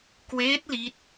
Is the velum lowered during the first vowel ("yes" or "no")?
no